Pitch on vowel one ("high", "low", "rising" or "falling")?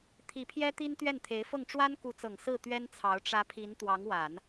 rising